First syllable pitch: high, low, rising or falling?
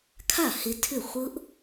falling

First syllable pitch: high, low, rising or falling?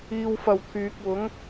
low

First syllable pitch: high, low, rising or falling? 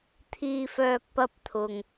low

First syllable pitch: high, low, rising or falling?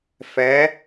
rising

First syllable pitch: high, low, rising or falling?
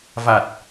low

